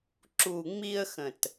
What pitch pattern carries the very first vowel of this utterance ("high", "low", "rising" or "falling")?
low